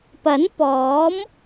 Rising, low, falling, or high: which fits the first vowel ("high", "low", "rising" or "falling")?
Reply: rising